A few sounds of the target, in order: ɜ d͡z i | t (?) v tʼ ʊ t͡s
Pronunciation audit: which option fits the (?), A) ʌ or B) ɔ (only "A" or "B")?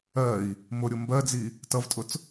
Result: A